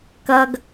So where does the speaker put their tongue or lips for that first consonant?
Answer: velum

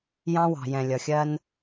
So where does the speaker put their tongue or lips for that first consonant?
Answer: palate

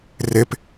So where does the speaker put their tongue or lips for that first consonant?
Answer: tongue tip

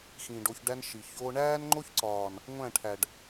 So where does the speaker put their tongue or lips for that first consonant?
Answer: velum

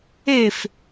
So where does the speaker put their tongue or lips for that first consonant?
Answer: lips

